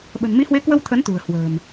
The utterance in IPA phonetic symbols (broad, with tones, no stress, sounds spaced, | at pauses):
ɓ ə̤˨˩ n m i˨˦ h w e˨˦ k w ə˧ w t̪ʰ ə˨˦ n t̪ ṳ˨˩ ə̯ h w ə̤ː˨˩ m